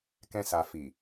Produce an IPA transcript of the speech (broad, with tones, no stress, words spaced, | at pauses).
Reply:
kɛ̃˦sa˧ fi˨